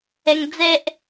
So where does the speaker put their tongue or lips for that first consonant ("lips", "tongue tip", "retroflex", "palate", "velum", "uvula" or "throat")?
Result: velum